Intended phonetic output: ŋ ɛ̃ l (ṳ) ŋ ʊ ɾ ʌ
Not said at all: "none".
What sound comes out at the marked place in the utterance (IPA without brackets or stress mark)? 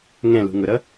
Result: ṳ